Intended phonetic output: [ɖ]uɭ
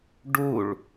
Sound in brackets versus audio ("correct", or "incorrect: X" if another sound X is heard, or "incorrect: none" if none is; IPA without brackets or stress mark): correct